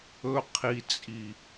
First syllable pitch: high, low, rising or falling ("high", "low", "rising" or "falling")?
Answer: low